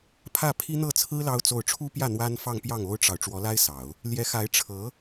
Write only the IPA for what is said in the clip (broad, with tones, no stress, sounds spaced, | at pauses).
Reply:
pʰ ä˥˩ pʰ i˥ n̪ ɤ˥˩ t͡sʰ ɹ̩˥ l ɑ˥ ʊ̯ t͡s o˥˩ ʊ̯ ʈ͡ʂʰ u˥ p j ä˥˩ n̪ w a˥ n f ɑ˥˧ ŋ p j ɑ˥˩ ŋ o˥ ʊ̯ ʈ͡ʂ ɑ˨ ʊ̯ ʈ͡ʂ w ɔ˧˥ l a˥ ɪ̯ s ɑ˨˩˦ ʊ̯ | l j ɛ˧˥ x a˧˥ ɪ̯ ʈ͡ʂʰ ɤ˧˥